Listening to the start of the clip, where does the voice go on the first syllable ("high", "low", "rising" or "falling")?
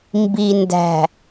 low